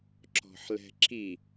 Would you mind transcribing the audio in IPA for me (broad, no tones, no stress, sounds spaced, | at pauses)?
ǁ ɔ̤ ħ l ɛ̤ ǁ i